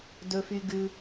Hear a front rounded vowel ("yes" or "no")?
yes